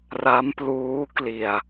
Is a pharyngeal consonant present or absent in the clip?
absent